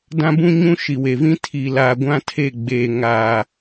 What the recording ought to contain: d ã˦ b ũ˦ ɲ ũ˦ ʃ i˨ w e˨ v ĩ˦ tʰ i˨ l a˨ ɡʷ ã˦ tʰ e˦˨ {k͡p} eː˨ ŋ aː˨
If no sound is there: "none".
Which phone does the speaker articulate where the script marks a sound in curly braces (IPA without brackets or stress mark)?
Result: ɡ͡b